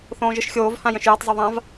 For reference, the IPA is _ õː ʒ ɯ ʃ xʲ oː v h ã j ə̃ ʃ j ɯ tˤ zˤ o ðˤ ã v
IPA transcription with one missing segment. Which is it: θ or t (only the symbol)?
θ